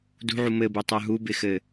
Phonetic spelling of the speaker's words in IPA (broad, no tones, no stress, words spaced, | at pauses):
dṳʕu mɘbutˤə˞ ɦubɪxɘ